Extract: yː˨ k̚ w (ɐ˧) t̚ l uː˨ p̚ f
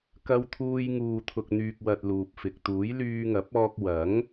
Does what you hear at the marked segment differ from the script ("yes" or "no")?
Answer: yes